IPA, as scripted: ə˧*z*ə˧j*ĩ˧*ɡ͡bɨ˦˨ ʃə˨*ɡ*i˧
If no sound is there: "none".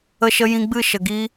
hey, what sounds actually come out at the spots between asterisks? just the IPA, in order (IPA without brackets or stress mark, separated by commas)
ʃ, ĩ˧, ɡ